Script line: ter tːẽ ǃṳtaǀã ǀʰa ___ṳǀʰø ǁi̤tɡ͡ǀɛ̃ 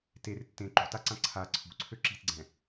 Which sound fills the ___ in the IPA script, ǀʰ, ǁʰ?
ǀʰ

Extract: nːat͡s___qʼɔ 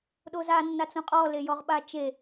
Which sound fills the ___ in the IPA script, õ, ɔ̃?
õ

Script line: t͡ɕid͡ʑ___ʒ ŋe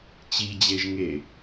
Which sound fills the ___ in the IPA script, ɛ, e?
e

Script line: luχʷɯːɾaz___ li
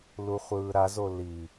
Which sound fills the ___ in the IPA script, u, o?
o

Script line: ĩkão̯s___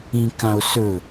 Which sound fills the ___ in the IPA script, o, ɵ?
ɵ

